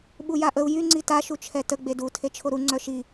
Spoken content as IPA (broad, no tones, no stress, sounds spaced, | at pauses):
ɓ u j a ʔ ə u̯ j y ŋ͡ǀ i t a ʃ u t͡ʃʰ ɛ t ə ɡ͡b e d u tʰ e t͡ʃʰ o ɾ u ŋ͡ǀ œ ʃ i